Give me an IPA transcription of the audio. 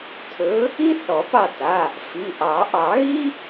tʰ ɵ˨˥ | i˥ θ ɔ˨˩˦ p ɑ˦˨ t a˩˧˩ | f i˩˧˩ ʔ ɑ˨˩˦ ʔ ɑ˨˩˦ ɣ i˥

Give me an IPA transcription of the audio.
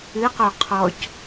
ɨ q o qʰ ɔ c

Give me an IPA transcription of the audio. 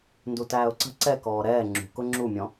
n d u t æː ʊ̯ ǀ ə̤ ǀ ɛ k ɔː ɾ ɛː ŋ͡ǁ ṳ k ʊ ŋ͡ǁ u mʲ ɔ̃

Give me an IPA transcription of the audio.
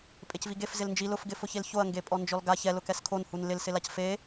pʼ e c v i ɡ e f z ɪ l n d͡ʒ i l ʊ f ɡ ɪ f ʊ ç e l ç o ɐ̯ ŋ ɡ e pʼ ɔ n d͡ʒ ɔ l ɡ a ç ɛ l ʊ k ɛ s kʰ o n h u n l ɪ l s ɪ l a c f e

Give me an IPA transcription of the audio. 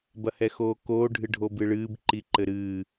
b ɐ h ɛ x oː k oː ɖʱ ɨ ɖʱ o b ɨ ɭ ɨː b ǃ i ǃ ɘ ɾ ɨː

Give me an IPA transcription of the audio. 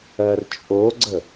ɜ r t͡ʃʼ o ɡ͡ǀ ə

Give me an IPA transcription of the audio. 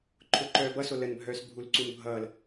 ǃʰ ʊː ǃ œː b ʌ s o l ə n bʱ œː s bʱ u l ǀ u n bʱ ʌː l

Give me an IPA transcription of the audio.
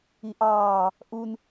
i ʔ ɑː | ʔ u n

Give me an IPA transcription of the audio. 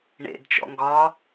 ɳ ḛ d t͡ʃ ɔ̰ ŋ ɡ ɒ

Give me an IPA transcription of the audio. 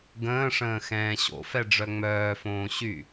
ɡ ə̃ː ʂ ə̃ː x ɛ̃ː ɕ o̰ f ɛ ɖ͡ʐ œ ŋ͡m œː f õː ɕ y

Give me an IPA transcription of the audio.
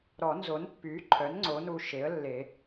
ɾ ɔ˨˩˦ n z o˩˥ n pː yː˩˥ ǃʰ œ˩˥ n ŋ͡ǀ o˩˥ n u˧ ʃ e˩˥ ə̯ lː e˨˩˦

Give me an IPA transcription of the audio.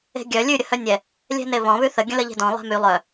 e̤ ɡʲ œ lʲ ʉ ɾʲ ə h œ nʲ ɛ | lʲ ɛ̤ n e β ɔ̃ β ʉ θ ə ɡʲ ə̃ l ə ʎ e̤ d ɔ̃ lˠ ɛ̤ m y lˠ œ

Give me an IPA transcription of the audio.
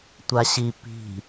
tʷ a ɕ i p i̤

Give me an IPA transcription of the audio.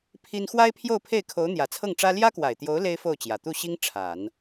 pʰ i˥ n x w a˥ ɪ̯ pʰ j o˥˧ ʊ̯ pʰ e˥˩ ɪ̯ kʰ o˧˥ ʊ̯ n̪ j ä˨˩ t͡sʰ ɤ˥˩ ŋ ʈ͡ʂ ä˥ l j ä˥ k w a˨˩ ɪ̯ t̪ j o˧˥ ʊ̯ l e˥ ɪ̯ f o˥˩ ʊ̯ t͡ɕ j ä˨˩ t̪ u˥˩ ɕ i˥ ŋ ʈ͡ʂʰ a˨˩˦ n

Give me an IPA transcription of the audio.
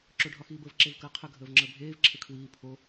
ǁ o ɖʱ ɒ x iː b ə v ǁ e v k əː qʰ ə ɡʱ əː v ŋ͡ǁ əː bʱ eː v ǁʰ e kʰ w iː pʰ o

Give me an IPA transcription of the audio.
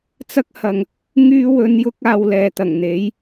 t͡s ɐ˧ k̚ h ɐ˨ ŋ | ŋ yː˧ w ɵ˨˧ n j ʊ˧ k̚ aː˧ w l ɛː˨ t̪ ɐ˨˩ ŋ n̪ e˨˥ j

